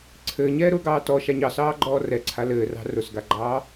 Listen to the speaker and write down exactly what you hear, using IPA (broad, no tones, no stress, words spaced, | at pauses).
ǀʰɘːɲɛːɾʊːɡɑː tɔʃaɲ ɑsɑːɡ͡ǃɔː rɛǀʰa lɘːrɑ̤ rʊsɡaɡ͡ǃɑː